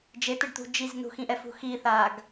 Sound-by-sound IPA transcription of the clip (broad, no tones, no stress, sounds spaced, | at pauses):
d͡ʒ e t̪ ɪ ɖ t̪ ṳ d͡ʒ i z n ṳ x ĩ ʔ ɛ f ṳ x i θ a ɡ